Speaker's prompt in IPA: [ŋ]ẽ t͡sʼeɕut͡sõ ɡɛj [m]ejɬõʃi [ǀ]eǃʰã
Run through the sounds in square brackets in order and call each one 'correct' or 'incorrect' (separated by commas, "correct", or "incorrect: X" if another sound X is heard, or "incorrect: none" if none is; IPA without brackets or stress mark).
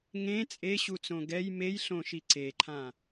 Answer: correct, correct, correct